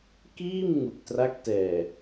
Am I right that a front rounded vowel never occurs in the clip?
yes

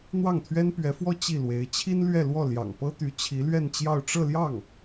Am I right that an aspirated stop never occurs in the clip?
no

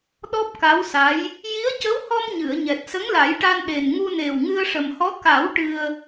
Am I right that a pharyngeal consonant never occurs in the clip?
yes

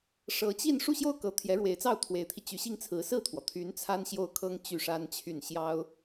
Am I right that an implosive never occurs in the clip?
yes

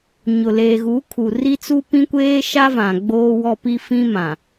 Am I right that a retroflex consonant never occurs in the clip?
yes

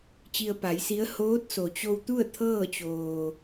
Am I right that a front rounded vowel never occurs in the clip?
yes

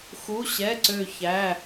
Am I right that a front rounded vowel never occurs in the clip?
no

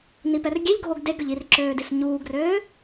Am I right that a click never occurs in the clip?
no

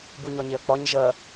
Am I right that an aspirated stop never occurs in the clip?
yes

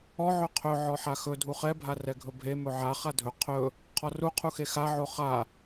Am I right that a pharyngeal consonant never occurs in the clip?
no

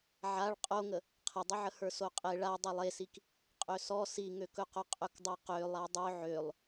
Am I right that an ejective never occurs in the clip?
no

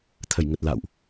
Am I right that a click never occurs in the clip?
yes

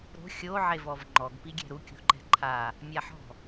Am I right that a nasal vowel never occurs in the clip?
yes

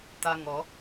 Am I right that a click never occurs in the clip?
yes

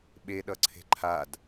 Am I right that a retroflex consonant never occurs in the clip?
yes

